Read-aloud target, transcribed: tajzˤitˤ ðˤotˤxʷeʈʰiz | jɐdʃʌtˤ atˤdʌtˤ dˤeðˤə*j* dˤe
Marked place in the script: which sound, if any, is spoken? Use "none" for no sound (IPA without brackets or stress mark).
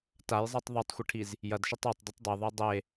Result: j